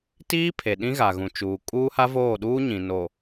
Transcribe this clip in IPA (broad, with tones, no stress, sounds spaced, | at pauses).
t iː˦ pʰ e˨ ɗ ĩ˦ ɣ a˨ ɣ ũ˨ t͡ʃ uː˨ kʼ uː˦ h a˦ v oː˦˨ ɗ uː˦ ɲ ĩ˨ n o˨